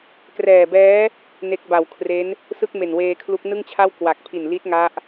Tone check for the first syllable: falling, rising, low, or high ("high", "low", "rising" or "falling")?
low